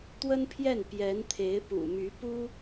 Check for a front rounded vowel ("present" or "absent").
present